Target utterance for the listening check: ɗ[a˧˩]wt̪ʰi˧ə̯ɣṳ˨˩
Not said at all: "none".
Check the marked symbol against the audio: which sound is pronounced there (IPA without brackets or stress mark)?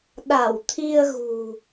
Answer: a˧˩